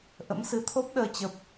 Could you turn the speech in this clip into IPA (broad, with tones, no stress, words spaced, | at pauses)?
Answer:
ʔə̰˧˥msɨ˨˦t̪ʰo˦˥p̚ɗəː˧ t͡ɕə˦˥p̚